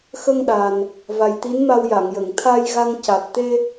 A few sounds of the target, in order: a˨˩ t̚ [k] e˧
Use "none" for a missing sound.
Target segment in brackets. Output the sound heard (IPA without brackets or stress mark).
t̪